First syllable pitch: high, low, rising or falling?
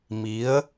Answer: rising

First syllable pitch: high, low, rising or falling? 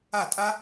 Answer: falling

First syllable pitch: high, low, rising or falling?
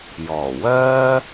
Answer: low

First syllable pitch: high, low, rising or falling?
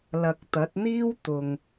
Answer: low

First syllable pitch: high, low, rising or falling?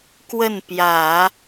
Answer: falling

